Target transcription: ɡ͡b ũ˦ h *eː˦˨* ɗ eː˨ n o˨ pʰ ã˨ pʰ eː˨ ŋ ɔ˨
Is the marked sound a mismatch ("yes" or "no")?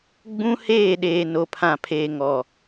no